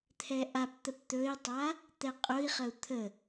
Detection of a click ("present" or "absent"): absent